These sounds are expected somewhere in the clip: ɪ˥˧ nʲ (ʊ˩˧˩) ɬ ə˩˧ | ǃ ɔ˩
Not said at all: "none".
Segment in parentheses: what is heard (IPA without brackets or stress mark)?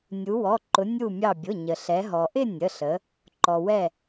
ə˩˧˩